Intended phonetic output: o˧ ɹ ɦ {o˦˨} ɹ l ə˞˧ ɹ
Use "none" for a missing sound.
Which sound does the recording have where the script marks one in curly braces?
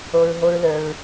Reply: o˦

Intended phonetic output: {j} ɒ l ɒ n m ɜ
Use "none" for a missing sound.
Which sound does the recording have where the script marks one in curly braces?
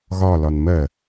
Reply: ɣ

